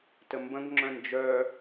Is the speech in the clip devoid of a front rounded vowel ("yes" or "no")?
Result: no